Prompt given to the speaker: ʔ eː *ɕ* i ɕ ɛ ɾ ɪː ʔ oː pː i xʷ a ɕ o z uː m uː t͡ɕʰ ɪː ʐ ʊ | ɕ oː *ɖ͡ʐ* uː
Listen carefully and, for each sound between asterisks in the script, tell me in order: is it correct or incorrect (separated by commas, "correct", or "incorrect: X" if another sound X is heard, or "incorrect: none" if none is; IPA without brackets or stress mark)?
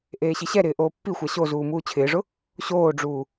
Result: correct, correct